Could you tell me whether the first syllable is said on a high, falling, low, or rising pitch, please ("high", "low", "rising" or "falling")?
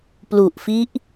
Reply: low